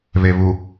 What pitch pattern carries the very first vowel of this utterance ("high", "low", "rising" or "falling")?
low